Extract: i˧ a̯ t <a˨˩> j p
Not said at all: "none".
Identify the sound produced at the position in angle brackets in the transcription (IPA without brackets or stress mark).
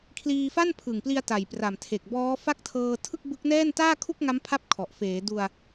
a˨˩